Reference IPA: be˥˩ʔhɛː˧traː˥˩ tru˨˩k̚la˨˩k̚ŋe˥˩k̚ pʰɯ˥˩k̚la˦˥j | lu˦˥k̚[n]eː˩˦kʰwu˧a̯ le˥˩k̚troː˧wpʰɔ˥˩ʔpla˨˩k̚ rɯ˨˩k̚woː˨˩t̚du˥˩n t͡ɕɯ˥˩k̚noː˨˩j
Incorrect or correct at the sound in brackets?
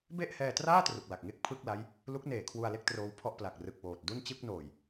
correct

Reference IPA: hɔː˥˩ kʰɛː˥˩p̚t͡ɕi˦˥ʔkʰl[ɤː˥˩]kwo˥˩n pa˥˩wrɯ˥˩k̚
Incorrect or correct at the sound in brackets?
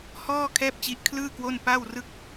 incorrect: ɯː˥˩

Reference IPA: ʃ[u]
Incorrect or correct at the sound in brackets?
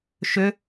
incorrect: ʏ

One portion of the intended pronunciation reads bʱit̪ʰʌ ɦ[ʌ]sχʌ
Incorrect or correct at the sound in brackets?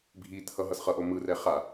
correct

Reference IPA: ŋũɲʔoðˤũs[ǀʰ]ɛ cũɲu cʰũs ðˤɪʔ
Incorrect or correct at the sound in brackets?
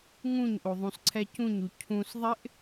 correct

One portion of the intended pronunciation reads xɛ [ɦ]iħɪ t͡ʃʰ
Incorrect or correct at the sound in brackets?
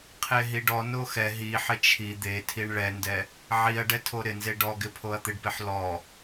correct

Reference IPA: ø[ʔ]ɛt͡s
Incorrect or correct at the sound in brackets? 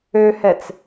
incorrect: h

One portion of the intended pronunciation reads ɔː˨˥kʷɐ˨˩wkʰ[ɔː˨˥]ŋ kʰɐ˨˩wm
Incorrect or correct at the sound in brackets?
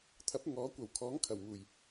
correct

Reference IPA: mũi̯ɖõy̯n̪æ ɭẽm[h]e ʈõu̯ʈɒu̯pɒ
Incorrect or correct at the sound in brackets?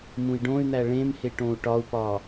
correct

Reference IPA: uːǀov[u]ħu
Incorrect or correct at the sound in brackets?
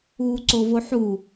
incorrect: o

